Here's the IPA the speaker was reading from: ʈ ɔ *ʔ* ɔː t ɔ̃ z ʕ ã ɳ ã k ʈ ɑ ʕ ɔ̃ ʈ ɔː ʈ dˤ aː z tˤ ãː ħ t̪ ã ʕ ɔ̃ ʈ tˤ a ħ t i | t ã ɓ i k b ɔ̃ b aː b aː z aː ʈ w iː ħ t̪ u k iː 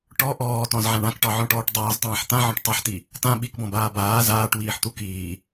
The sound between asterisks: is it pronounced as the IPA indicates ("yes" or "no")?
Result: yes